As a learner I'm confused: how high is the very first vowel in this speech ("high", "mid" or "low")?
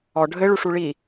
mid